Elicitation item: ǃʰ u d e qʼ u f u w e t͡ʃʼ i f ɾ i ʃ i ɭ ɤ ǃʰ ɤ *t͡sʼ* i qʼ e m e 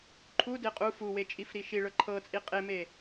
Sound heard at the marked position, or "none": t͡sʼ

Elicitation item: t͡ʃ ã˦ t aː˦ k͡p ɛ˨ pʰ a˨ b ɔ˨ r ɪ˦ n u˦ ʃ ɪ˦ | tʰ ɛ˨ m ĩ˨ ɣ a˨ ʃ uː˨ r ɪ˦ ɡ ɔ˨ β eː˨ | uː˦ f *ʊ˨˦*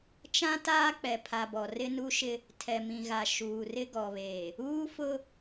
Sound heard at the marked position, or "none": ʊ˦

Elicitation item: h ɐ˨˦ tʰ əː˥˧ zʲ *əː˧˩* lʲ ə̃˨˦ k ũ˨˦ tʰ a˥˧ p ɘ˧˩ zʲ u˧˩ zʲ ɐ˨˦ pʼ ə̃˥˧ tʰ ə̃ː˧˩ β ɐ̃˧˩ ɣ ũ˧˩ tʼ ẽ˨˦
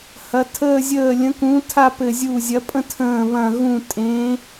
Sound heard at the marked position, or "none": əː˧˩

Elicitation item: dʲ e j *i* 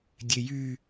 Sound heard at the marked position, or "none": y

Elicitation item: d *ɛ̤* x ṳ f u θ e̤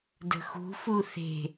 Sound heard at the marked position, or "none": ə̤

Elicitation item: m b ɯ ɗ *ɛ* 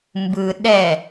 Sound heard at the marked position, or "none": ɛ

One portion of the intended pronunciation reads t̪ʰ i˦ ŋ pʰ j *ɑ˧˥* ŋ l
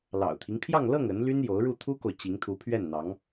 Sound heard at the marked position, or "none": ɑ˥˧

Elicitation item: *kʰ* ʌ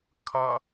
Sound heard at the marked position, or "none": kʰ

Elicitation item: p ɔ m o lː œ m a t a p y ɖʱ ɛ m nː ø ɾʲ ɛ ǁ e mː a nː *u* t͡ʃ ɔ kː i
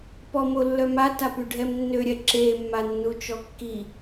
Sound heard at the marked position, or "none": u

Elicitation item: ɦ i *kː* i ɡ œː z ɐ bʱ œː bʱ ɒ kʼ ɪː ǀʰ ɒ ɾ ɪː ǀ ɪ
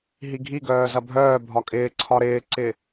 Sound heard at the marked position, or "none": ɡʱ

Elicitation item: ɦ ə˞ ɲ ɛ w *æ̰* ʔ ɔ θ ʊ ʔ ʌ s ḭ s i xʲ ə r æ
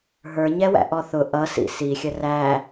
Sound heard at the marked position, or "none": æ̰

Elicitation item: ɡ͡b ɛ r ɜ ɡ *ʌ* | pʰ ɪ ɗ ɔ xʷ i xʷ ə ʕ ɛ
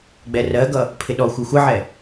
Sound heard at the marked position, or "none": ʌ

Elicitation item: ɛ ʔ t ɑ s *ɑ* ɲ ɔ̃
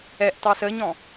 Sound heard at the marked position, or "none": ə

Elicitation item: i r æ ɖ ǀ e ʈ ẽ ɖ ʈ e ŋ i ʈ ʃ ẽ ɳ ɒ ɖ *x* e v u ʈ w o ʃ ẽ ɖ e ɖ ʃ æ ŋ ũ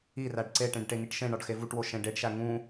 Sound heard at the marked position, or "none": x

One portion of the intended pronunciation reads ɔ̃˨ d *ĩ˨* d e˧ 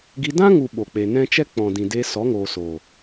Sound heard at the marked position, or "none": ĩ˨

